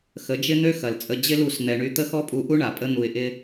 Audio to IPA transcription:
xə˨˦d͡ʒɪ˦n̪ø˦ xɐ˨lt͡sʼə˧ d͡ʑɪ˦lu˦˨s n̪ɛ˧ɳy˦ t̪ə˦xɔ˦pʼu˧ʔu˦ ɳa˨pʼə˦ n̪u˧ɪ̯ʔɪ˦

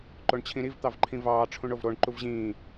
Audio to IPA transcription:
ǃoɳt͡ɕʰĩɾiv t̪ɑvǃʰĩvɑː ʈ͡ʂʰũɳovɾoɳ ǃuvʑĩː

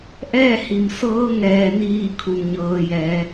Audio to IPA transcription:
ʔɛː˥˨hi˩msɤː˧˥ ŋɛː˩niː˧˩ kʰu˩nɲɤː˩jɛː˩˧

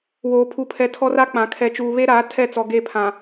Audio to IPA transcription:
woː˨pʰu˨pʰɛ˨ tʰɔ˦ra˦k͡pã˨ kʰɛ˨t͡ʃuː˨βe˦ɾaː˨˦ tʰɛ˦˨t͡sɔ˨ ɡe˦˨pʰã˨

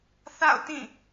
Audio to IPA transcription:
θa̰˦˨ʊ̯ tĩ˦˨

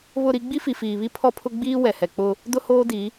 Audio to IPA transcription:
βʊ˦˨ɾi˦ ɡ͡bi˦fi˨fiː˨βi˦ pʰɔ˦pʰʊ˦ ɡ͡biː˦ wɛ˨hɛ˨k͡pʊ˦ | dʊ˦hoː˦di˨˦

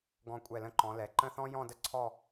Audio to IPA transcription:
ɡɔ̃˧˩kʷʼɛ˧˩lə̃˧ ǃɔ̃˩˧lɛ˩˧ǃə̃˥˧θɔ̃˥ jɔ̃˥˧də˥ ǀʰɔ˥˧

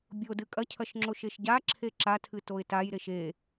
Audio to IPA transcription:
bʲodɨ kʼɐcʰɐʃŋ͡ǁo ʃeʃɟaǁʰe ǁatʰɨ toɪ̯tajɾeʃ e

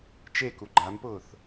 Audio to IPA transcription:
t͡ʃeku ɡ͡ǃampʊːθ

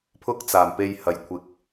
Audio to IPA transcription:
pʰʊ˥k̚t͡saː˨˩m pe˧jhɐ˨˩jkʷʰɪ˨k̚

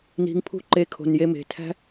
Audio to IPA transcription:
ni̤˧ŋpʰṳ˦ǃe˧ kʰo̤˨nje˧ me̤˨tʰæ̤˦

